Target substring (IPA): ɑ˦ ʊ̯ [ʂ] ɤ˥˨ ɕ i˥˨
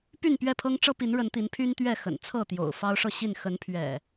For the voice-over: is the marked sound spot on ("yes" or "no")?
yes